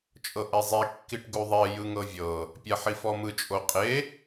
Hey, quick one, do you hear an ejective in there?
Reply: yes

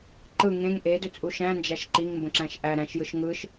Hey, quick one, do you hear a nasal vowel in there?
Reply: yes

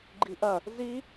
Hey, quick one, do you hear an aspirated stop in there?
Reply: no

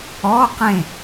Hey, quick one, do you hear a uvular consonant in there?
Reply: yes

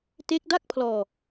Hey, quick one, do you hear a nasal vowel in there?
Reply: no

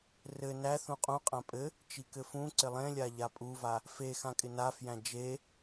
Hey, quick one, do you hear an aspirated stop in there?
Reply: no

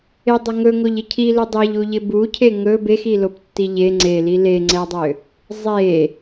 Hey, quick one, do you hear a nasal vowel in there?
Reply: no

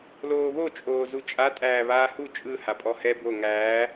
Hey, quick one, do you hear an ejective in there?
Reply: yes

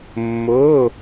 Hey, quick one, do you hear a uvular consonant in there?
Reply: no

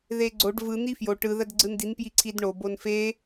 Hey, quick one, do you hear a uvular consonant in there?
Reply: no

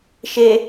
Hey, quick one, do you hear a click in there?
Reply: no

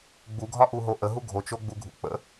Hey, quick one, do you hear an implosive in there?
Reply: no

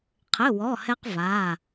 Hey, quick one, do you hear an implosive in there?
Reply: no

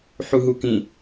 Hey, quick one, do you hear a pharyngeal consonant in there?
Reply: yes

